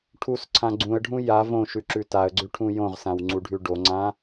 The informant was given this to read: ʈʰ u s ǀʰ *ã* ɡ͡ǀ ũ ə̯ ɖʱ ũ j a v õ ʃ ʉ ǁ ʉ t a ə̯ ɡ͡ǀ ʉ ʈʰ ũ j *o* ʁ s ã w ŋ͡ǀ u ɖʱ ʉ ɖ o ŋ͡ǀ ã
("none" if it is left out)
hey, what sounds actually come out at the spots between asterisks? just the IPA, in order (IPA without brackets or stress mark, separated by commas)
ã, õ